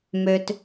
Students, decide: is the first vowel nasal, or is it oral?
oral